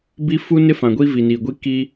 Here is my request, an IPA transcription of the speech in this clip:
b i˦ f u˦ n ɪ˦ f ã˨ ɡʷ i˦ v i˨ n i˨ ɡʷ i˦ k i˦

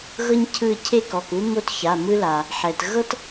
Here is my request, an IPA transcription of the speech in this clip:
ɣ ɤ˥ ɲ cʰ ɯ˦˨ cʰ e˥ k ɔ˩˧˩ k u˥ m o˥ t ç a˩˧˩ m ɯ˥ l a˩ | ħ ɛ˩ t ɣ ɤ˥ t

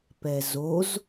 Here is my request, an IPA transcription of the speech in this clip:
p ɛ z o z

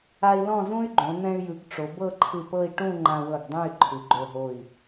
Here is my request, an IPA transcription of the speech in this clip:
a˧ i̯ l ɔ̃˥˧ z ũ˥ y̯ ɡ͡ǃ õ˩˧ n̪ ɛ̃˧ y̯ j ɯ˩˧ ɡ ʈ͡ʂ o˩˧ b ɤ˥˧ ǃʰ ɯ˧˩ p ɤ˥˧ i̯ ʈ ũ˥˧ ŋ͡ǃ ã˧ w ɤ˧˩ ɡ dˤ ɛ̃˥˧ y̯ ǃʰ ɯ˩˧ ɡ͡ǃ o˧˩ ɦ o˧˩ i̯

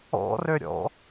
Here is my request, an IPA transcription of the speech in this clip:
ɔ̰ r ø ɾʲ ɔ̰

